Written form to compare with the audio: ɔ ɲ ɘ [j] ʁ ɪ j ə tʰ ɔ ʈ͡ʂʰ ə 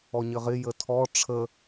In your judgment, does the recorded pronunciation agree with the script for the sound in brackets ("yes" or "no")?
no